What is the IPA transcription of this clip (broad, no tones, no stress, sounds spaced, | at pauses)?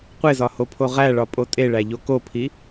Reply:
qʷ e z ɒ h o pʰ o ʁ æ ɭ ɒ pʼ o tʼ e ɭ æ ʎ o k o pʰ i